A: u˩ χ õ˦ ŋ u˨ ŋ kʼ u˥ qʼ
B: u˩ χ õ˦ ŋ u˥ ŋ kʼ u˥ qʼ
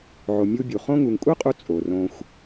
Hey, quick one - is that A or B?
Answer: A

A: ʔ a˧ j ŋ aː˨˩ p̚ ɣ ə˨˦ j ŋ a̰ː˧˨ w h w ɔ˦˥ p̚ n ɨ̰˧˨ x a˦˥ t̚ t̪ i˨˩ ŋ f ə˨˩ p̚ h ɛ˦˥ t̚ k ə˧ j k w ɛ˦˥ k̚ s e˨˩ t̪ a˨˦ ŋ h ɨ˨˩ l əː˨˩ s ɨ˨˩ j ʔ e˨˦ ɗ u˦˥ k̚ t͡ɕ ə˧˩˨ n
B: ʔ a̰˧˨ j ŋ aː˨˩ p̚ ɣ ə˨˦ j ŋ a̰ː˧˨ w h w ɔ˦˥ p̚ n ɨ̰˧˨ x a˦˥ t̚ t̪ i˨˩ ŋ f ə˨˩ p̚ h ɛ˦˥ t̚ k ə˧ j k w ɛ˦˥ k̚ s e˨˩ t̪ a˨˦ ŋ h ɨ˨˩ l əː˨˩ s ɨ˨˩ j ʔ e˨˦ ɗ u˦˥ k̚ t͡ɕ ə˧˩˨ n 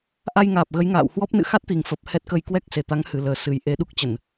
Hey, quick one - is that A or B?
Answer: A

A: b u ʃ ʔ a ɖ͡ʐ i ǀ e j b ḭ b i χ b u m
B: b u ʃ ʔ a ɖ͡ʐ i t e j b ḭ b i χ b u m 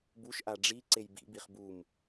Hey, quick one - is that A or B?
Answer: A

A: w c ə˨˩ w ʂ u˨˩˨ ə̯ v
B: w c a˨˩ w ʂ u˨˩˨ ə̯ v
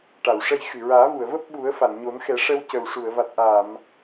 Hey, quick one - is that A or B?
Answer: A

